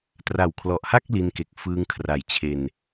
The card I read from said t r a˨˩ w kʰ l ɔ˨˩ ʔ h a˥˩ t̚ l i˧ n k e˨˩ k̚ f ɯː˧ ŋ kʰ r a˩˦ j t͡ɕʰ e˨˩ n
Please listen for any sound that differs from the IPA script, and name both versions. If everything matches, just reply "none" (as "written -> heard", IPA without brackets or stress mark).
t̚ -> k̚